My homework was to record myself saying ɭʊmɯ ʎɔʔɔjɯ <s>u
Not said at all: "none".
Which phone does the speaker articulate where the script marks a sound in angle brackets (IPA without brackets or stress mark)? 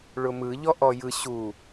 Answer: ɕ